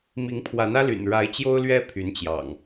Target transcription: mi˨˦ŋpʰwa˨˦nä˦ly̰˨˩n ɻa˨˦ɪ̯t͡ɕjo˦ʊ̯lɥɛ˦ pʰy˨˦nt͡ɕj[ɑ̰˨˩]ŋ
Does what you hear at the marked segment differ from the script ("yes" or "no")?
no